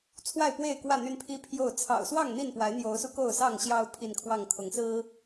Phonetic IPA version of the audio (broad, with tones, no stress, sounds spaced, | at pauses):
t͡sʰ w a˥˨ ɪ̯ p w e˥˨ ɪ̯ k w ä˥˨ n̪ y˦ n pʰ i˦ pʰ j o˥˨ ʊ̯ t͡sʰ ɑ̰˨˩ ʊ̯ s w ɑ˥˨ ŋ n̪ i˥˨ n p w a˨˦ ɪ̯ n̪ j o˨˦ ʊ̯ s u˧ k o˥˨ ʊ̯ s ɑ˥˨ ŋ ɕ j ɑ˦ ʊ̯ pʰ i˥˨ n kʰ w ɑ˥˨ ŋ kʰ ʊ˨˦ ŋ s ɹ̩˦